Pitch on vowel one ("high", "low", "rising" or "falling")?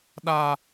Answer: high